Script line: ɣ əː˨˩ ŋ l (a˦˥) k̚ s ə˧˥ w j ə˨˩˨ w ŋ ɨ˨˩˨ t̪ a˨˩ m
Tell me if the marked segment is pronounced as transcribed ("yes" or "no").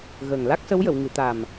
yes